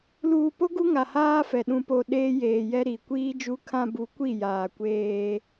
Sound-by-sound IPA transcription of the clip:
l uː˨ p o˦ ɡ u˦ ŋ a˨ h aː˦ f ɛ˨ ɗ ũ˨ p o˨ ɗ eː˦ j eː˨ j ɛ˦ ɾ i˨ kʷ iː˦ d͡ʒ uː˦ kʰ ã˦ b u˨˦ kʷ i˦˨ j aː˨ kʷ eː˦

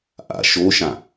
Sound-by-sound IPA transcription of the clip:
ʔ a̰ ʃ o ʃ ã

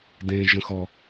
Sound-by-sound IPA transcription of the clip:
d ẽ ʒ ə̃ x ɔ

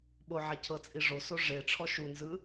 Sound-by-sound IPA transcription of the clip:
ɓ o ʕ ɛ cʰ ɤ t͡sʼ i ʐ o s o ʐ e ʈ͡ʂʰ ɔ ʃ u n z ɯ

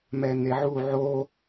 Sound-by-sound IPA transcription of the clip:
m ɛ n̪ e ʕ u ʕ o

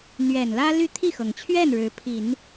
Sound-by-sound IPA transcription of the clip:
n̪ ɥ ɛ˨˩ n l ä˥ l y˥˧ t̪ʰ i˥˩ x ɤ˩ ŋ t͡ɕʰ ɥ ɛ˥˩ n ɻ ɻ̩˧˥ pʰ i˨˩˦ n

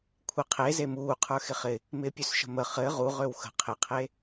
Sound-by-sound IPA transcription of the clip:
kʷʰ ɪ qʰ e z e m uː qʰ ə˞ x ɪ χ ɪ | m ɪː pʲ ø s ʃ ə̤ m ə χ ɘ ʁ u ʁ ø w x ə̤ qʰ ɪ qʰ e

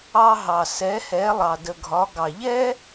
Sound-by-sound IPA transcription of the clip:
ɑ˧ ɦ ɑ˩ s ɛ˩˧ h ɛ˩˧ lˠ ɑ˩ d ə˩ ɡʱ ɒ˩˧ ɡ ɑ˩ ʎ ɛ˥

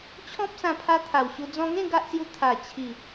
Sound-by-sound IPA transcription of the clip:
t͡ɕʰ ɔ̃˦ p̚ s ã˧ pʰ a˧ t̪ʰ a˨˩ w ɕ u˧ d͡z ɔ̃˧ ŋ ẽ˥˧ ɡ a˦ ʔ s j u˧ t̪ʰ a˨˩ t͡ɕʰ i˨˩

